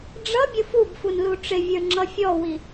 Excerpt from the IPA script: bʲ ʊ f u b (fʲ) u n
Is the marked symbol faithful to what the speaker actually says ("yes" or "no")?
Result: no